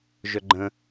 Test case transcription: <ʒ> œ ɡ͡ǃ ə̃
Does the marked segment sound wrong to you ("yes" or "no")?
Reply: no